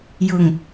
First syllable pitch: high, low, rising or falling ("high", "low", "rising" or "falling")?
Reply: low